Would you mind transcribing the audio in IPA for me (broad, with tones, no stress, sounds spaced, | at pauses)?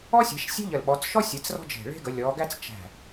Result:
ɔ˥ sʲ æ̤˨˦ ʃ sʲ e̤˥ ʎ ə˧˩ l ɓ ɔ˨˦ t͡s ʃ ɔ˥ sʲ e˨˦ t͡s r ɔ̤˥ d͡ʒ e̤˧˩ ɭ e̤˥ ɡ ə˨˦ lʲ ɔ˨˦ ɡ æ˥ t͡s t͡ʃ æ̤˧˩